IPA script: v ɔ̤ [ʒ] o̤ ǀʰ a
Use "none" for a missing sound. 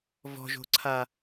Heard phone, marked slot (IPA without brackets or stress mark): ʒ